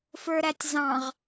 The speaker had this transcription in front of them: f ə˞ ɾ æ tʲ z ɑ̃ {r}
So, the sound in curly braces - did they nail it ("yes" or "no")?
no